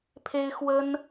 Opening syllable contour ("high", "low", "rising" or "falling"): high